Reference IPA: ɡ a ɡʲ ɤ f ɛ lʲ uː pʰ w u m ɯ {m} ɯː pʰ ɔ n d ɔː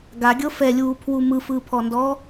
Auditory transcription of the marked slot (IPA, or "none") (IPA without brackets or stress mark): f